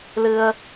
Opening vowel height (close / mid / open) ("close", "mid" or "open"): close